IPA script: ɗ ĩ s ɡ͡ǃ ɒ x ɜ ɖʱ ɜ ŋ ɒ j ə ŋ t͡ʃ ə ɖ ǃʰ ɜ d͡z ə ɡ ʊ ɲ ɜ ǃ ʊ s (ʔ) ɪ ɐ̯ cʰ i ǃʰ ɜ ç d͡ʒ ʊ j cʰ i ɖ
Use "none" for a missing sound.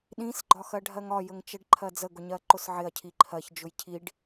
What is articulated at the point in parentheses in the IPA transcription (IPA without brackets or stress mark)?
ʕ